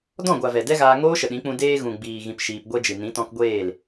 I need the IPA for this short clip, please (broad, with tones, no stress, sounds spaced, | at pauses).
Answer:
d ɔ̃˦˨ ɡʷ a˨ v ɛ˨ d ɛ˦ ɣ aː˧ ŋ oː˦ ʃ ə˨ ɗ ĩ˨˦ k͡p ũ˧ d eː˧ ɣ ũ˨ ɡ͡b iː˨ ɣ ĩ˨ p ʃ iː˧ p ɡʷ ɛ˦ d͡ʒ ɨ˨ n ĩ˨˦ t ɔ̃˧ k ɡʷ eː˦˨ l